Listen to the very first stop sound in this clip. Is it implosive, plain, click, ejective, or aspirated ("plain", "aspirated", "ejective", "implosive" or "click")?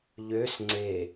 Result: click